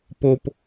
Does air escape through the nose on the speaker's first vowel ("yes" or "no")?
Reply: no